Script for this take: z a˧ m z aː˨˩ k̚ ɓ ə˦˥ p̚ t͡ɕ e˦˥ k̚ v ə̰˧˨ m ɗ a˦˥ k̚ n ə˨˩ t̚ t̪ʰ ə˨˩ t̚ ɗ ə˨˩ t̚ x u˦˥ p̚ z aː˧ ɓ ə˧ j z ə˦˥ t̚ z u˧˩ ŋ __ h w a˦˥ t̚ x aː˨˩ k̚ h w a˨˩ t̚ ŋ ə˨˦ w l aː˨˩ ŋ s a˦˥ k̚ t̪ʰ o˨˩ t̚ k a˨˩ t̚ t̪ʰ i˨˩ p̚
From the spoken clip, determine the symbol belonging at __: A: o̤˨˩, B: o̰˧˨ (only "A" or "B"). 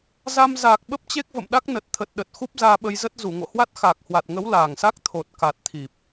B